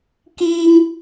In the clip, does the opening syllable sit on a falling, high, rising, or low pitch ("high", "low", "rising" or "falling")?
high